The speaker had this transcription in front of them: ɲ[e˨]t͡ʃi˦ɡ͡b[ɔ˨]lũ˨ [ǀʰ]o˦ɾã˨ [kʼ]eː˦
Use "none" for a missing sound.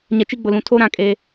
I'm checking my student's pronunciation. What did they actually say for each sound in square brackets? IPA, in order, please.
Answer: ɛ˨, ʊ˨, tʰ, kʼ

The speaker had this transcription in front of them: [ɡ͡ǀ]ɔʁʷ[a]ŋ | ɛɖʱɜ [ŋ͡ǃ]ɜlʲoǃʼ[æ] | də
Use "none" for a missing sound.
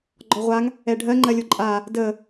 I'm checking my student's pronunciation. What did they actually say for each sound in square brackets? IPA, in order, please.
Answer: ɡ͡ǃ, a, ŋ͡ǃ, a

